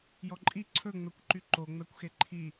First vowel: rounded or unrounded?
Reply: rounded